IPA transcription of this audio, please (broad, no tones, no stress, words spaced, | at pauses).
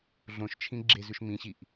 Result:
ɮõʃt͡ʃʰĩ ɡ͡ǁezʉʃ mĩɕiʔ